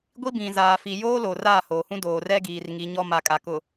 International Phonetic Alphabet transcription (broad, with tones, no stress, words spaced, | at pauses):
ɡʷi˦bĩ˨ zaː˨fi˨joː˦ loː˨raː˦˨hoː˨hũ˦ doː˨rɛ˦ɡiː˨r ŋi˨˦ɲɔ˦ ma˨kʼa˨ kʊ˨